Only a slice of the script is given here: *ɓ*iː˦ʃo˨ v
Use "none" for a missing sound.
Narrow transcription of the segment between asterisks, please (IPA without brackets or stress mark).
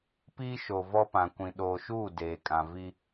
p